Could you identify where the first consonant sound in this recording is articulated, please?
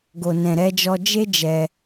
velar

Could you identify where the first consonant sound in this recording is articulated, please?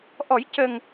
glottal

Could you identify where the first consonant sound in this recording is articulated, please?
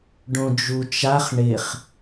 retroflex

